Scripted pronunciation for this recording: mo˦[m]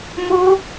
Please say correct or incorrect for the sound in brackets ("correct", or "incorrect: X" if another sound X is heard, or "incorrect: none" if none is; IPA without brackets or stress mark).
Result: incorrect: none